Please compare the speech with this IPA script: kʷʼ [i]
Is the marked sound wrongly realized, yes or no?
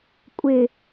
yes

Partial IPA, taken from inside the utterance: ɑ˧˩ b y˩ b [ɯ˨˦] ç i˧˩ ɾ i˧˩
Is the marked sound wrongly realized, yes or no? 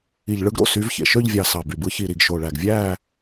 no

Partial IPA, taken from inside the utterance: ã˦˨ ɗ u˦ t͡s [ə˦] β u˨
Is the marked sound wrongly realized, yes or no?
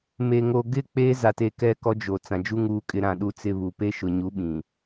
yes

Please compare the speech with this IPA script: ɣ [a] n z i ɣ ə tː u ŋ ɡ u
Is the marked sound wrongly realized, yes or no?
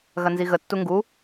yes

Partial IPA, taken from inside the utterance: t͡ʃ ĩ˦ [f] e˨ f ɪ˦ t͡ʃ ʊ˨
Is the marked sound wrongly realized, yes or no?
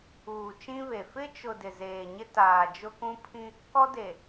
yes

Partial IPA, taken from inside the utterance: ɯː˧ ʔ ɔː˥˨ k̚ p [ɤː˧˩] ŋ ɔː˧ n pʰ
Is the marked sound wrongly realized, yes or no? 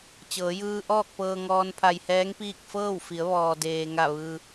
yes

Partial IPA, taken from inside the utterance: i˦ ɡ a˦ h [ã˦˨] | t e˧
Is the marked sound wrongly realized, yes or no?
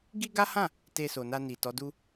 no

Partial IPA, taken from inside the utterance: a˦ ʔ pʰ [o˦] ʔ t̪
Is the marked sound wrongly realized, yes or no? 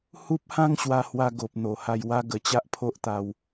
no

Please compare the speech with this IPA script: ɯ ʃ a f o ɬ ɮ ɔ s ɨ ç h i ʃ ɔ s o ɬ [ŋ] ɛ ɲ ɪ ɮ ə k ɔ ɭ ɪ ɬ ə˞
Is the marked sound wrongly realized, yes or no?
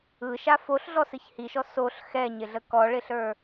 yes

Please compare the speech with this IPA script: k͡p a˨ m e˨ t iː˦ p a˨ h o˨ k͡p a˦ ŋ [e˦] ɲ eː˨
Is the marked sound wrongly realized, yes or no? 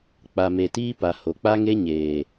no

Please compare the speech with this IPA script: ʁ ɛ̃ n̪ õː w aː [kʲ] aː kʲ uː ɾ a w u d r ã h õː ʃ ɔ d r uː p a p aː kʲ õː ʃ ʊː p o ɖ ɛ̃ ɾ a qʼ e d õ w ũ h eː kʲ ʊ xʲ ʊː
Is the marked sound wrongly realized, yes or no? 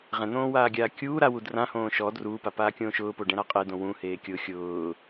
yes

